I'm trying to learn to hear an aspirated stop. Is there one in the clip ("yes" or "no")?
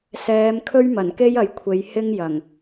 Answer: yes